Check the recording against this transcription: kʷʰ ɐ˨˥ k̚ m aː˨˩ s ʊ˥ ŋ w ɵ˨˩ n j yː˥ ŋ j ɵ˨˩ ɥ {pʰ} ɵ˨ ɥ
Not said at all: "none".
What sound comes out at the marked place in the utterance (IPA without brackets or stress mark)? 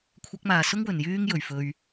f